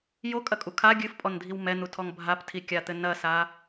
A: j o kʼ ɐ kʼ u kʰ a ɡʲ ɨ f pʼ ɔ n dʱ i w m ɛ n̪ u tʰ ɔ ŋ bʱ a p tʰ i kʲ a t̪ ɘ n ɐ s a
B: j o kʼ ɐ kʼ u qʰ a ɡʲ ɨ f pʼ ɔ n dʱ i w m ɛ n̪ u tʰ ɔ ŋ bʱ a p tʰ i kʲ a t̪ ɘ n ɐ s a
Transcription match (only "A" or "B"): A